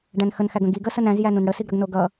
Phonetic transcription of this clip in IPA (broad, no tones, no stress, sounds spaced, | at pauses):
ɖ æ̃ n x ə n x æ ɡ ə̃ ɡ i ɡ ə s ə n æ̃ z j æ n ũ n ɽ ə s i ɡ ɾ ʌ ɡ n o ɡ ʌ